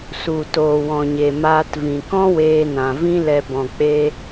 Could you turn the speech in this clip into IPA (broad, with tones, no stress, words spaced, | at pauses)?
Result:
su˨ toː˨wɔ̃˨ɲe˨ maː˧tvĩ˨ kɔ̃˦weː˧nã˨ vĩ˧lɛ˨ bɔ̃˨k͡pe˧